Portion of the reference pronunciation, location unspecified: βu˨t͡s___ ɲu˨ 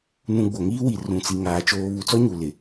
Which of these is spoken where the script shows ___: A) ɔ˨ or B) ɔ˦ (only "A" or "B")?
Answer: B